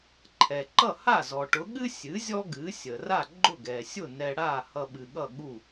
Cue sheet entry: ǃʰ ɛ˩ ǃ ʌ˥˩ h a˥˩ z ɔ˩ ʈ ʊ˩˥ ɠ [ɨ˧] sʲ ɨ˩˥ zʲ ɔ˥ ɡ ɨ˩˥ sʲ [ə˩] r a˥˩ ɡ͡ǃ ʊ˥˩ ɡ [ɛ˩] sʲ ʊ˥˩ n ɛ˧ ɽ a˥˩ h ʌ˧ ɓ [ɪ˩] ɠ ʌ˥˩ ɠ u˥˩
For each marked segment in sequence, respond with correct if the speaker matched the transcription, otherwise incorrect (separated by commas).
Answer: incorrect, correct, correct, incorrect